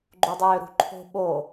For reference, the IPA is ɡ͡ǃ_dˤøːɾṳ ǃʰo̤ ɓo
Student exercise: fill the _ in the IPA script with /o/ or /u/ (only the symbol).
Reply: u